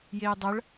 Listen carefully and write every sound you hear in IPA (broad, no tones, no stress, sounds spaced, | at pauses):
j e j dˤ ɐ ɭ